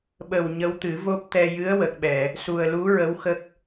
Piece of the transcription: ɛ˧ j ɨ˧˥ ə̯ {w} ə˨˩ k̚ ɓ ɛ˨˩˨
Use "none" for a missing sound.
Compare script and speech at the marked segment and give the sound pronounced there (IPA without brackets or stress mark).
w